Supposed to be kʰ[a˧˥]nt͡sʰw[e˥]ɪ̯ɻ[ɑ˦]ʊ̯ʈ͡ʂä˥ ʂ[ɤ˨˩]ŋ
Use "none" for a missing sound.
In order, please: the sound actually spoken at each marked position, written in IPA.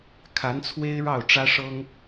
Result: a˧˥, e˥, ɑ˥˩, ɤ˥

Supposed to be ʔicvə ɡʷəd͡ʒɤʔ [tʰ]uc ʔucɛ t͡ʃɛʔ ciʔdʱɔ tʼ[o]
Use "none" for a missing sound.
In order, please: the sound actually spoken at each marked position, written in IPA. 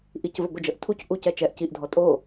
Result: tʰ, o

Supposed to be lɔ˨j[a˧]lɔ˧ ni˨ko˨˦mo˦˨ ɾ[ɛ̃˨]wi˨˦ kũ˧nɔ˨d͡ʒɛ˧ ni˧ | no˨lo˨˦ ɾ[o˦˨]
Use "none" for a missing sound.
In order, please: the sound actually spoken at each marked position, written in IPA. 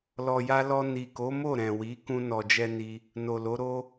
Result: a˧, ɛ̃˨, o˦

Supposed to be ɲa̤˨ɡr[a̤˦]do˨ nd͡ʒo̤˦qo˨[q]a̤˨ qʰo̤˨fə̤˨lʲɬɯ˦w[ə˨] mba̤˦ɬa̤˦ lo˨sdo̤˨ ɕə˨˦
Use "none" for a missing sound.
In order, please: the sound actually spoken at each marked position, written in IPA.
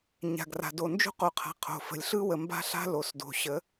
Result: a̤˨, qʰ, ə˨

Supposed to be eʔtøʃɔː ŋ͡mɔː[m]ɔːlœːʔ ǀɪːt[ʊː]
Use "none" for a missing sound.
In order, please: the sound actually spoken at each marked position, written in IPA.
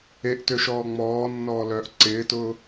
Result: nː, ʊː

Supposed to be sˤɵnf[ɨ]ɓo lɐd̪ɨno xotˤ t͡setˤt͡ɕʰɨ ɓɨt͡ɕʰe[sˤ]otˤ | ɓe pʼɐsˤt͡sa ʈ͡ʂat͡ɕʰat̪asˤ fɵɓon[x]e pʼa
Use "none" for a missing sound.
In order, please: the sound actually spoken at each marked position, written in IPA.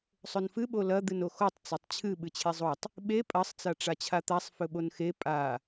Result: ɨ, zˤ, x

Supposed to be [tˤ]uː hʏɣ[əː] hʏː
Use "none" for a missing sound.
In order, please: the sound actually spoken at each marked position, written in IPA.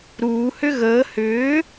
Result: ɾ, əː

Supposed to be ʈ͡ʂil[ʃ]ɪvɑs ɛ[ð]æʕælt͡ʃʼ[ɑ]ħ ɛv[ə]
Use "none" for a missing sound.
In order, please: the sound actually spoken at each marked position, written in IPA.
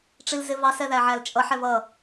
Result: z, ð, ʌ, ʌ

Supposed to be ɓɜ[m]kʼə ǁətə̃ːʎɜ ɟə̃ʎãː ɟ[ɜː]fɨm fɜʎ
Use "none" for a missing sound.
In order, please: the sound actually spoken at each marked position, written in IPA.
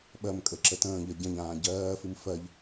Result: m, ɜː

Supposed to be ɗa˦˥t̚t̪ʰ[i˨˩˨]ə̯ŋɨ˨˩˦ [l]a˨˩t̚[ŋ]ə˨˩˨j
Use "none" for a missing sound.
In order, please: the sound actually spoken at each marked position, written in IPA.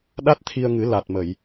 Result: i˧, l, m

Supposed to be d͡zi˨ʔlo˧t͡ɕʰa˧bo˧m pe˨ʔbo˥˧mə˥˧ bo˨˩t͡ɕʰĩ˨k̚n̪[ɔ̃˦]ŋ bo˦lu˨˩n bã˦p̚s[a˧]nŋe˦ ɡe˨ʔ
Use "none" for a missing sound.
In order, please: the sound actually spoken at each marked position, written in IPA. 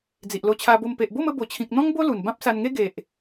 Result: ɔ̃˦, a˧

